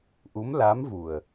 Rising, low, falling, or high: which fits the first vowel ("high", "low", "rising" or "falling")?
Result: rising